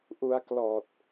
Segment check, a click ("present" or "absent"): absent